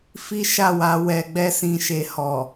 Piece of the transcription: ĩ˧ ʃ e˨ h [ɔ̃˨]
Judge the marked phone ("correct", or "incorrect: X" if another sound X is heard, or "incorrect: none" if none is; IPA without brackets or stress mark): incorrect: ɔ˨